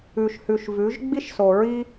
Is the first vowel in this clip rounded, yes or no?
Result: yes